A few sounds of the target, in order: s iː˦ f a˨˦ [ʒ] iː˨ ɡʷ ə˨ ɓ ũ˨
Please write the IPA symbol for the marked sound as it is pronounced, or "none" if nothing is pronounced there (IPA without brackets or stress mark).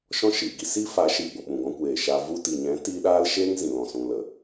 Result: ʃ